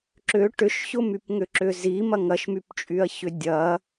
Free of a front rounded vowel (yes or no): no